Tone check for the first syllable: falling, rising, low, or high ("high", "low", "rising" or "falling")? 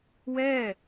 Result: falling